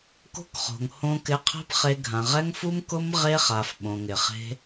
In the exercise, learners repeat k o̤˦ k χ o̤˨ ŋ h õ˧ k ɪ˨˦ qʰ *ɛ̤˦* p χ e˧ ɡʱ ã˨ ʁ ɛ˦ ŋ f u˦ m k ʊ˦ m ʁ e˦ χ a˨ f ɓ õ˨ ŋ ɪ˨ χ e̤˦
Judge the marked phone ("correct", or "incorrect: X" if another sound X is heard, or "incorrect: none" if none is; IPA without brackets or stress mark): correct